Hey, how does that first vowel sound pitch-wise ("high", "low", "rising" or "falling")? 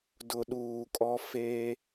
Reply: low